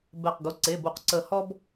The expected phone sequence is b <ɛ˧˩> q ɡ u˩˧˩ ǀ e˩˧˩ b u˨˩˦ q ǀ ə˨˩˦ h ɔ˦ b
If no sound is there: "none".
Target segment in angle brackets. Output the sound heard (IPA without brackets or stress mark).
ɛ˧˩